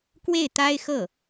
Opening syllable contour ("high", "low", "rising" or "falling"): falling